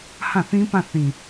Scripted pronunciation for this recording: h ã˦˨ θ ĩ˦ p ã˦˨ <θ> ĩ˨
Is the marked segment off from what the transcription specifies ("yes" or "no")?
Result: no